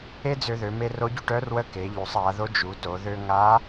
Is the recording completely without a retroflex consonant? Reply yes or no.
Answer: no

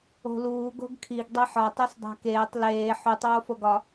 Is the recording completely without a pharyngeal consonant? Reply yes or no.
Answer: no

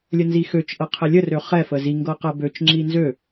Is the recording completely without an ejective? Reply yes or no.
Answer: yes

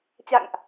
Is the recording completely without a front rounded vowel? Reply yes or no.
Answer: yes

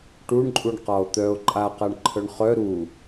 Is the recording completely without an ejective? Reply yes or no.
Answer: no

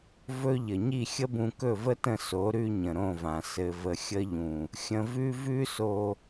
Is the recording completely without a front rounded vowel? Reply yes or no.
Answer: yes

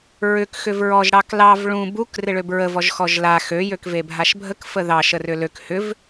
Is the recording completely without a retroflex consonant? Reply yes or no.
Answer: no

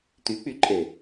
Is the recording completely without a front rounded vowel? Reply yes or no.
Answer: no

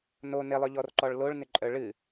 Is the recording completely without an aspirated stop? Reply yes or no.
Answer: yes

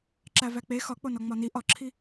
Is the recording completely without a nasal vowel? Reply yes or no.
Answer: yes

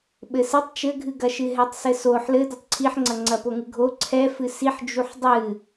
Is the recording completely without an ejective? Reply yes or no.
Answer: yes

